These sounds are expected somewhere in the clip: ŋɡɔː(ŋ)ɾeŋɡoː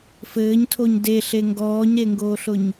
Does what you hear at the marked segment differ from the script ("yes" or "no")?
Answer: yes